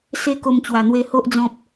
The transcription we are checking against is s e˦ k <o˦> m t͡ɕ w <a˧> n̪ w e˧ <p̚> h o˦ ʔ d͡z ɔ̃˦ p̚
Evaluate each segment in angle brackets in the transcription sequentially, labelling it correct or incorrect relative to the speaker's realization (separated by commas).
incorrect, incorrect, incorrect